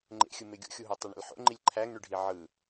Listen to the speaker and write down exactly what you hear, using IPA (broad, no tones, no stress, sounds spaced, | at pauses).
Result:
ŋ͡ǃ ḛ xʲ ɯ m e ɡʲ o̰ xʲ u ɦ æ tˤ y ɳ ḛ l ħ o̰ ŋ͡ǃ i lʲ ǃʰ æ ŋ ɳ y ɖʱ i ʕ ɯ